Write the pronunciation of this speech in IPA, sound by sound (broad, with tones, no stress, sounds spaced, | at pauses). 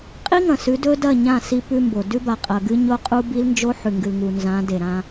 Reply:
qʼ i˦ ŋ ɐ̃˨ s ʉ˨˦ d ɵ˦ d ɐ˦˨ ɲ ã˦˨ s i˦ p ʉ˦ m b o˨ d ʉ˦ b a˨ qʼ ɐ˨ ɡ ɨ˦ ɲ o˦ qʼ u˦ b i˦ l n d͡ʒ o˦ ħ ʉ˨ ŋ ɡ ɨ˨ l ŋ u˨ n z ã˨˦ d e˨ ɾ ã˦